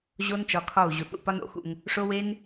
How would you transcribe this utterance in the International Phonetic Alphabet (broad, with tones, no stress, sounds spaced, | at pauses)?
ʑ o˦ n t͡ʃ ɒ˧ kʰ ɒ˦˨ u̯ ʑ u˨ θ ṵ˦˨ p ɒ˦ n o̰˦˨ x ṵ˧ ŋ | ʂ o˦ w e˦ n